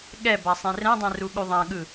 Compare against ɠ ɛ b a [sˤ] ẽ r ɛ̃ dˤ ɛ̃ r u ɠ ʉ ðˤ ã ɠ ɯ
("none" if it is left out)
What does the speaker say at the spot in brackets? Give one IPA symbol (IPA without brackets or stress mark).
sˤ